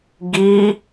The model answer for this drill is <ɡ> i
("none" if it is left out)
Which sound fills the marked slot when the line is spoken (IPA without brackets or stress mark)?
ɡ